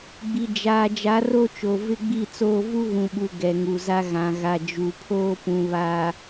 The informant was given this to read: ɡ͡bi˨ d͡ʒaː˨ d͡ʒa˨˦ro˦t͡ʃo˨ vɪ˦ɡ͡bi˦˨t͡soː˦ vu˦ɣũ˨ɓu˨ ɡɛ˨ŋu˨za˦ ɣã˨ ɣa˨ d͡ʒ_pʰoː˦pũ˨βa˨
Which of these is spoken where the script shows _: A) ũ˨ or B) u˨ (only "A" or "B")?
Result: B